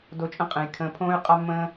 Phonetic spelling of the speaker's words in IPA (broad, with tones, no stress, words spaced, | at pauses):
do˧t͡ʃʼə̃˦qʼẽ˨jkʰə̃ː˧ pʰõː˦y̯qʼa˦mːə̃ː˦